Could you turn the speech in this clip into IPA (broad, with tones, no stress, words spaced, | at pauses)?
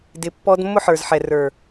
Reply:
dɪ˨pːɔ˦d mːʊ˦ħə˞˨zħɛ˨ rə˞˨